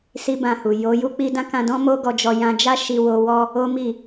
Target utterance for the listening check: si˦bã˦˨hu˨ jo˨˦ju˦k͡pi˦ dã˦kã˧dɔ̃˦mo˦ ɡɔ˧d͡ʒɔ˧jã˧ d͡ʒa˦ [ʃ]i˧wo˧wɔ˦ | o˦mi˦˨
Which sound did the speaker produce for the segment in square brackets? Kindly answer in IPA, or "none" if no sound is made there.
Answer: ʃ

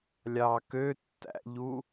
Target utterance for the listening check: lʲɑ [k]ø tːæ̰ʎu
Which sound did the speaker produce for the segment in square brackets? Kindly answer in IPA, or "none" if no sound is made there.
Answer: k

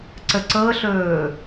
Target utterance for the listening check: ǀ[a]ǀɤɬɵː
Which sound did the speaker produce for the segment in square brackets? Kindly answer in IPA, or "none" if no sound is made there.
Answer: ə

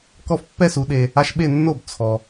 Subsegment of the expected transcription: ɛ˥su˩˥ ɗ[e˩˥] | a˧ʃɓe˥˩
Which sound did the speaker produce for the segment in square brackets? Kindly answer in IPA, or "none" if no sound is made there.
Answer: e˧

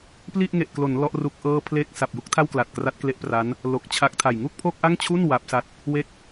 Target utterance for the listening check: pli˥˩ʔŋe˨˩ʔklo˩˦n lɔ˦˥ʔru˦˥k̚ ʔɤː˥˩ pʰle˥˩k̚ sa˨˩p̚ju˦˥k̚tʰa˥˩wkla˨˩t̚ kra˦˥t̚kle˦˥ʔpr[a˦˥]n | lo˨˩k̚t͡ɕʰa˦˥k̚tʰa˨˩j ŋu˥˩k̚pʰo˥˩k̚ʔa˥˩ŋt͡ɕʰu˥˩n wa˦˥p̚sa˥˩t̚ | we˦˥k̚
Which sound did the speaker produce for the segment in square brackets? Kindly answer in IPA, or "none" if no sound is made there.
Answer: a˦˥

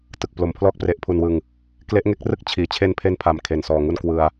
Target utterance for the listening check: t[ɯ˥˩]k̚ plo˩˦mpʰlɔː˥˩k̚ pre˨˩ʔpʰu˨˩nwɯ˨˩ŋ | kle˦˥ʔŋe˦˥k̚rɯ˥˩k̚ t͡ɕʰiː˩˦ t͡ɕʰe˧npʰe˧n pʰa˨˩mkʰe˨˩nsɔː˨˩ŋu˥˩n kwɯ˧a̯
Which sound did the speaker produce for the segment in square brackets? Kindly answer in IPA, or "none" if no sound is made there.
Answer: ɯ˨˩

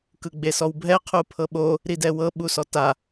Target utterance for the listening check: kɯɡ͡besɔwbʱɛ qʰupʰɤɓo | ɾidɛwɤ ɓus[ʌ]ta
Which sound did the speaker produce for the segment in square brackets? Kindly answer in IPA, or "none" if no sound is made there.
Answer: ɔ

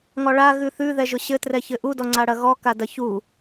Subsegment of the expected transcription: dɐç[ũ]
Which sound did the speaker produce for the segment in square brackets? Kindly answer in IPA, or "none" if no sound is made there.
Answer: u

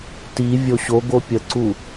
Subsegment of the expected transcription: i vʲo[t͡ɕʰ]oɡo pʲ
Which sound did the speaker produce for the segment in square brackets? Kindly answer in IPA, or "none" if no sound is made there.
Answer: ɕ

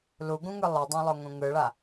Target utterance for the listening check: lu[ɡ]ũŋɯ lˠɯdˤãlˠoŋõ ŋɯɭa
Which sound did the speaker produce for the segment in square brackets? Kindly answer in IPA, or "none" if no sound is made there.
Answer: ɡ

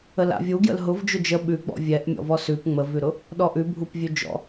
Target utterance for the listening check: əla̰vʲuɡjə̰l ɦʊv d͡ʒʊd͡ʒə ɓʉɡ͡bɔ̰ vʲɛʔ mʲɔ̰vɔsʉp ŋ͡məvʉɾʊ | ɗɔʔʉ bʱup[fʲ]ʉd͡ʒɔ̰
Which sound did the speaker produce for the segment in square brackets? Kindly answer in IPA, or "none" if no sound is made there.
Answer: vʲ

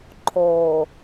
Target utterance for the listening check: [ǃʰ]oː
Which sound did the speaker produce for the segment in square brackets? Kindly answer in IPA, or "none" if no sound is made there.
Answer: ǃʰ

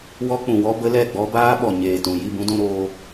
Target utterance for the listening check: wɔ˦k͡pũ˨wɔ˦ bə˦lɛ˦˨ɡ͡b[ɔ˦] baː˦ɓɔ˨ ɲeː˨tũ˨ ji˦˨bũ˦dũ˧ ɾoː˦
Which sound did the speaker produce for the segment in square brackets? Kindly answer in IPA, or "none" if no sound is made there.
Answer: ɔ˦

